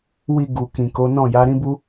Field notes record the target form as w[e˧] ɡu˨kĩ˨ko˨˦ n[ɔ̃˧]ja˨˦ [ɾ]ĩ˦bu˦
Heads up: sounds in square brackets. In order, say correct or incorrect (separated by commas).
incorrect, incorrect, correct